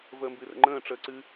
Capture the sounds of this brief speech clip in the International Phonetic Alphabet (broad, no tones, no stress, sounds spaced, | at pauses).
v əː m b ɨ r ə̰ ŋ͡ǃ ə̃ː ʈ͡ʂ əː ǀ ɨ